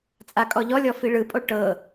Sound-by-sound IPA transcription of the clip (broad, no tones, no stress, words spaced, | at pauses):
t͡sʼakʼɔʎɔlʲɔ fiɭɯpʼo ʈɤ